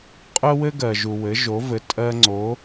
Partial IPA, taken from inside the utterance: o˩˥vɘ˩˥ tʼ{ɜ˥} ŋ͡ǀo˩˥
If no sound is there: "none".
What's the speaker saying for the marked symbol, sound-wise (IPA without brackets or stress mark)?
ɜ˥